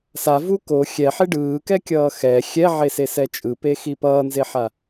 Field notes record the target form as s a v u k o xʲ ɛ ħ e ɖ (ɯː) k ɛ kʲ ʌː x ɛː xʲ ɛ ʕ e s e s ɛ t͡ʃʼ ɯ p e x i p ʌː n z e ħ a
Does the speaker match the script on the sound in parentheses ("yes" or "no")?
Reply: yes